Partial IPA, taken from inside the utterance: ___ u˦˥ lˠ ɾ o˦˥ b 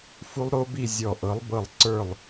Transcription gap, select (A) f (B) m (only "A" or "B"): A